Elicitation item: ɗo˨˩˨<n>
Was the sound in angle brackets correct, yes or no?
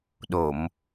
no